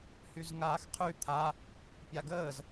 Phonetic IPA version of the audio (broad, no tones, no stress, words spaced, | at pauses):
hyzŋaːxqʰy t̪ʰa | pʲaɡəːz